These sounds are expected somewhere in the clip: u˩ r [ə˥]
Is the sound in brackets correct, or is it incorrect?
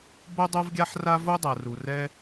incorrect: ɛ˥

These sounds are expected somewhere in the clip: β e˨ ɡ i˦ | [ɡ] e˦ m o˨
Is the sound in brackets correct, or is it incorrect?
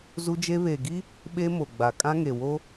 incorrect: ɓ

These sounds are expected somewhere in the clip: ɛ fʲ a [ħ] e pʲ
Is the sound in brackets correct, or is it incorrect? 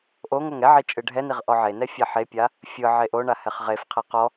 correct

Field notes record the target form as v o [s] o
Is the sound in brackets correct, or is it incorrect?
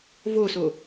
correct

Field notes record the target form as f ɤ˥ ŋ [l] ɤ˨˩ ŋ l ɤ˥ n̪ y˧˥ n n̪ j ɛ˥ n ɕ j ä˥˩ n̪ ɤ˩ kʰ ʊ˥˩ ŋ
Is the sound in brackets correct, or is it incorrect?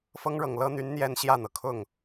incorrect: ɻ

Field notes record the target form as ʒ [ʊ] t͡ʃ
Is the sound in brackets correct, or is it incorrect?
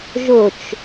correct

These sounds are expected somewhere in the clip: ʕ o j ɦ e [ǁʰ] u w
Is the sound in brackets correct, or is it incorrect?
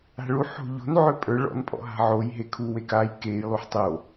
incorrect: kʰ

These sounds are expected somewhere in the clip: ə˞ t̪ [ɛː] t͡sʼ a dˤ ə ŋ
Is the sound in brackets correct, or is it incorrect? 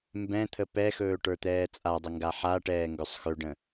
correct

